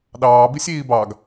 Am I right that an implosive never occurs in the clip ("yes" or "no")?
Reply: no